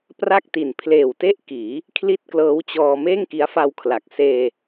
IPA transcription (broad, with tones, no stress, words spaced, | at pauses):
pra˥˩k̚ti˨˩n pʰleː˨˩wte˥˩ʔkiː˩˦ | kʰli˥˩t̚klɤː˦˥wt͡ɕɔː˧ meː˥˩ŋki˦˥a̯fa˧wkʰla˨˩k̚ seː˧